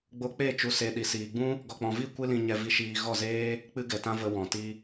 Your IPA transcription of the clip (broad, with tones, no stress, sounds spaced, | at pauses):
ɡ͡b o˧ k͡p e˦˨ t͡ʃ u˨ s e˨ ɗ i˨ s iː˨ ɡ͡b ũ˦ | ɡ ɔ˨ k͡p ɔ̃˨ v i˦˨ kʷ ɨ˦ l ĩ˧ ɲ ɛ˧ v i˧ ʃ iː˧ ɣ ɔ˦˨ z eː˦ | k͡p ɨ˦ ɡ ɛ˨ t ã˦ v ə˧ w ɔ̃˨ t i˧